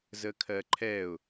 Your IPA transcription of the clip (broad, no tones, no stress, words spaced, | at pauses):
zəkʰɜǃʰɛʊ̯